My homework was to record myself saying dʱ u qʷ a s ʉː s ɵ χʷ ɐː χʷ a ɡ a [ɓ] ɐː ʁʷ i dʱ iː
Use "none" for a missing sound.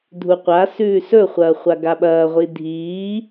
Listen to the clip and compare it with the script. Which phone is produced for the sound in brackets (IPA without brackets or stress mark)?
ɓ